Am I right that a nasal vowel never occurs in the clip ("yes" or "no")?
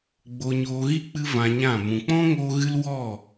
no